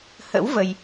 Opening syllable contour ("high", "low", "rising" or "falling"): rising